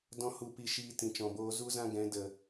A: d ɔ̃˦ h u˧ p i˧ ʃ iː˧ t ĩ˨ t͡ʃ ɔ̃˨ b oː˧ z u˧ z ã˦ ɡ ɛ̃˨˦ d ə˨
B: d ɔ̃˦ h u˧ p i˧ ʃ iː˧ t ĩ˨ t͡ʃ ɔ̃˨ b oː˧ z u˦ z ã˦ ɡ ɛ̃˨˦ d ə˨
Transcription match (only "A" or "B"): B